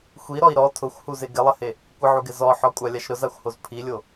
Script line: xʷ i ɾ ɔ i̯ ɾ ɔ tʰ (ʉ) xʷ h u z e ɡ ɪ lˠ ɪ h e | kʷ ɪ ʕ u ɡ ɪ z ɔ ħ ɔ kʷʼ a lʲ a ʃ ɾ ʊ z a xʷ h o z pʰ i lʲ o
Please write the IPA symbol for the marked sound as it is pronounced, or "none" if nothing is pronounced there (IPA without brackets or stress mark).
ʊ